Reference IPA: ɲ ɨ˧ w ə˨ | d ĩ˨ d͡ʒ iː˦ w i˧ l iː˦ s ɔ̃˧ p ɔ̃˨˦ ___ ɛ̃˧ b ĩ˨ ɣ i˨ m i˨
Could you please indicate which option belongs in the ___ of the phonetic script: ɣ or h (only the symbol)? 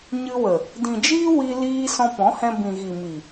h